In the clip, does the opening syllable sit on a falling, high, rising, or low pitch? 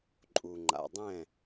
low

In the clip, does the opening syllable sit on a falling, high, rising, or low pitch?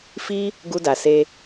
high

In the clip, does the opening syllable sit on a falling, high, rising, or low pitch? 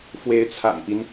rising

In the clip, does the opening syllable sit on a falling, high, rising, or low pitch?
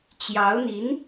rising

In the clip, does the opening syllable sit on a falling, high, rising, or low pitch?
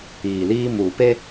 low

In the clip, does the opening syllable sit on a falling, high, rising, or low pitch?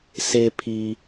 low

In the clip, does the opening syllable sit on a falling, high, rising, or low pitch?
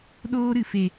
high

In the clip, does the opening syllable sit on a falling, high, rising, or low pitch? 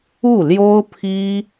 falling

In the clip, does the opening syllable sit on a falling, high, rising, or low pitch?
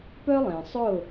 high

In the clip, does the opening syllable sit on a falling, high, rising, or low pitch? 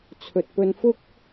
low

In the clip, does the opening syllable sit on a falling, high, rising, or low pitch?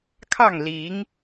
falling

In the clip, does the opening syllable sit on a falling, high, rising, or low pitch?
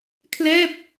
falling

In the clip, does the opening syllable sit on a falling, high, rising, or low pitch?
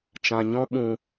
low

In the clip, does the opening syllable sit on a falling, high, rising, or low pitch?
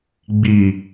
low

